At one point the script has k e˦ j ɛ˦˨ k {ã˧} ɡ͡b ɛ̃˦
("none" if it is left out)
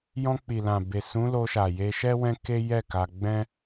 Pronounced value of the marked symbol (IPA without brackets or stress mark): a˧